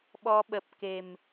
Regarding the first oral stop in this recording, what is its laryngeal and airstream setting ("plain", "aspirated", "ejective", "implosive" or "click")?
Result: implosive